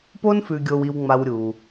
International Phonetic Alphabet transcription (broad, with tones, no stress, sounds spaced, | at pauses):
p o˥ n f ʉ˨ ɡʲ o˨ w i˨ w ŋ͡m a˨ w ɾʲ u˩